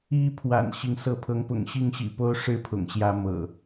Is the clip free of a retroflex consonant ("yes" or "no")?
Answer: no